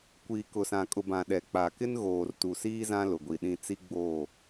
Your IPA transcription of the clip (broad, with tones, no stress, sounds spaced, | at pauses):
kʷ iː˨ k ʊ˨ s ã˨ kʼ ʊ˨ b ã˨ ɗ ɛ˨ k͡p a˨ k ɪ˦ n ɣ oː˨ r t u˨ s iː˦ z ã˦ l ʊ˨ ɡʷ i˨ ɗ ĩ˦˨ t͡s i˦ ɡ͡b oː˦˨